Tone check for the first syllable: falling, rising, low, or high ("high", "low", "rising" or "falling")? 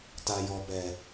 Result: low